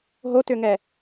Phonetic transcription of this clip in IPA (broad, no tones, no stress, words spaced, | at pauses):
ɦotʏŋɛ